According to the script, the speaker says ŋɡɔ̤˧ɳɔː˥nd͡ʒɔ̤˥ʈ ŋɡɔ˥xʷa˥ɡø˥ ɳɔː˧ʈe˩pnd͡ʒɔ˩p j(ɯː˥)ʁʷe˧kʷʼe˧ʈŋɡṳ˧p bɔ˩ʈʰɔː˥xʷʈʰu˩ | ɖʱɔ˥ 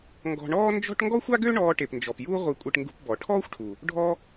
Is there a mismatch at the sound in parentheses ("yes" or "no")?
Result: yes